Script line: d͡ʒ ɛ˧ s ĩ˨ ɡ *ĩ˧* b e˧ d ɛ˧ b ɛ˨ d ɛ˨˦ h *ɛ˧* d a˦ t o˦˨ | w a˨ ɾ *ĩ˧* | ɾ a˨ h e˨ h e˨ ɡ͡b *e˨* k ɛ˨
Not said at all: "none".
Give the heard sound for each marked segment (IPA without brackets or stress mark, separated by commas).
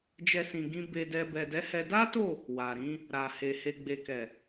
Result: ĩ˧, ɛ˧, ĩ˨˦, e˨